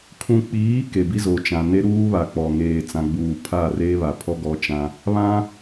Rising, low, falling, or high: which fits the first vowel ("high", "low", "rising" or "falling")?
low